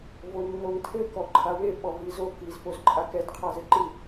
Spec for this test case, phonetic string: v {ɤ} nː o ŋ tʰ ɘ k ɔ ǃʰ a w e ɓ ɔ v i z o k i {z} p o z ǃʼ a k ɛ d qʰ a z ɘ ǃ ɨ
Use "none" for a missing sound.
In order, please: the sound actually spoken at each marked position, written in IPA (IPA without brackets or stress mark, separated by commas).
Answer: o, z